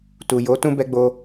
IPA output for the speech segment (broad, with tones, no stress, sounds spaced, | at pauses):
t u˨ j o˨˦ t ũ˦ b ɛ˧ ɡ͡b o˧